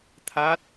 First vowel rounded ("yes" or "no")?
no